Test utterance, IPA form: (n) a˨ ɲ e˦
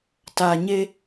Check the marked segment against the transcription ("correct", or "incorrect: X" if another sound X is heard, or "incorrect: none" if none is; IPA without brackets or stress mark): incorrect: t